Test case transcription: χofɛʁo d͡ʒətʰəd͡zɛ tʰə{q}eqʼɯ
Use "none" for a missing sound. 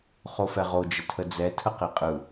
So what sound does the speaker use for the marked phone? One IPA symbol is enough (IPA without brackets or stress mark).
q